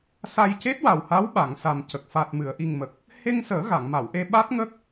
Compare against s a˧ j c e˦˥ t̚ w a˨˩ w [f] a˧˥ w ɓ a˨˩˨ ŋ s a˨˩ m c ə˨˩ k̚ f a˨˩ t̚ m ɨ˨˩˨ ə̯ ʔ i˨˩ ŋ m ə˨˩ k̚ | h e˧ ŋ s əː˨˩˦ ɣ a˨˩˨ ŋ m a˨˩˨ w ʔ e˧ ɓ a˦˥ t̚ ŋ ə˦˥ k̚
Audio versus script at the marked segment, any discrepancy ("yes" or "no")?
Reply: yes